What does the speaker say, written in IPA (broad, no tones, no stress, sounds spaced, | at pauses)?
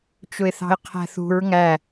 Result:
t͡ʃ ʊ ɪ̯ θ ɑ̤ ɪ̯ qʰ æ̤ θ ṳ ɹ ŋ æ